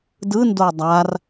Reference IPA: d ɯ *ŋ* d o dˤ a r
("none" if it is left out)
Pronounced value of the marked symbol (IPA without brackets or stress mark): n